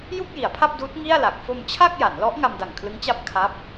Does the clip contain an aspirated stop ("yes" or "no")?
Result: yes